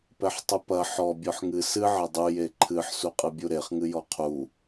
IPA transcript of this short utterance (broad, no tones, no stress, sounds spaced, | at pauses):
p ɛ ħ tˤ ɨ p ɐ ħ ɔ bʲ ɔ ħ ŋ ɨ s ɨ ʕ ɐ dˤ u j e ǃʰ ɨ ħ s u qʼ ɨ bʲ u ɾ e χ ŋ ɨ j ɔ qʰ u